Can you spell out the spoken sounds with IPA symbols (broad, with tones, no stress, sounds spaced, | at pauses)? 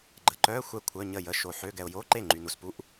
ɡ͡ǃ ə˨ ǃ œ˧˥˧ xʷ ɛ˥˩ kʷʰ œ˧˥˧ ɲ ə˥˩ j ə˧˥˧ ʃ o˨ ħ ø˧˥˧ ɡ ɛ˨ ʊ̯ j o˧˥˧ ǃ e˥˩ ŋ͡ǃ y˨ n u˨ s p u˧˥˧ ʔ